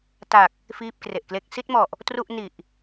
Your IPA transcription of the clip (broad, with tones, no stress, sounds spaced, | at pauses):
t a˨˩ k̚ | f iː˥˩ p̚ k r e˨˩ ʔ k l e˥˩ k̚ s i˥˩ t̚ m ɔ˨˩ ʔ | t r u˥˩ ʔ n i˨˩ ʔ